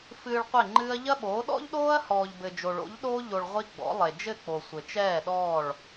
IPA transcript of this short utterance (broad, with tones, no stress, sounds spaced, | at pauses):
f ɨː˧ ɭ qʷ e˦˨ ŋ͡ǃ ɨː˦ ɐ̯ ʎ ɐ˦ ɓ oː˨˦ ɗ ɔ̰˦ ʎ ɗ oː˦ ɐ̯ h ɔː˨ ʎ b ɘ˨ d͡ʒ o˨ ɭ o̰˨˦ ʎ ɗ oː˦ ʎ o˧ ɭ ʁʷ i˦ ɡ͡b ɔ̰˨˦ lˠ e˨ d͡ʒ ɘ˦˨ k͡p o˨ sʷ ɘ˨ t͡ʃ ɛː˦˨ ɗ ɔː˦˨ ɭ